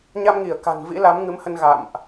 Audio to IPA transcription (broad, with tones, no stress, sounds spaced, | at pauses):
ɲ a˧ m ŋ i˧˩ ə̯ k a̤˨˩ n v ḭ˧˥ l a˨˦ m ŋ ɨ˨˦ m h ə˧ n ɣ a̰˧˨ m ʔ